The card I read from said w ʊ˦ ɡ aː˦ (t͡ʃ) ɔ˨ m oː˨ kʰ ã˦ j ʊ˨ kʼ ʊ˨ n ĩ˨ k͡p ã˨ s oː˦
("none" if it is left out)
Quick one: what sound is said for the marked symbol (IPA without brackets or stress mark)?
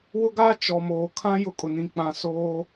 t͡ʃ